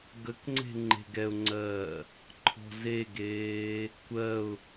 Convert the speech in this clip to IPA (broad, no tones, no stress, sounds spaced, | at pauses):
ɡ ə k ŋ͡ǀ e̤ ŋ͡ǃ e̤ ɡ ɛ ʊ̯ ŋ͡ǀ ɜː | ǃʰ ɔ̤ z e ɡ eː | kʷ ɜ ʊ̯